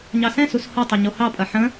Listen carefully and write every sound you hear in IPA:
ɲɑsɛ̃sus hotˤɛ ɲohɑpʼɐ ħə̃

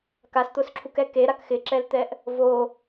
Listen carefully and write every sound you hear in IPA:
kast̪ʊsǁʰukɛ keɾak xɪǁɛlt̪ɛʔ | vo

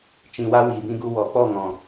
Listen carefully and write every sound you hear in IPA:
t͡ʃĩ˨wa˧ wiː˨bĩ˧ɡu˧ wɔ˨k͡pɔ˦˨ ŋɔ̃˨

